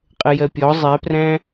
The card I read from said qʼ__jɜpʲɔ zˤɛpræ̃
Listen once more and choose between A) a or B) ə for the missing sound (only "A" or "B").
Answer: B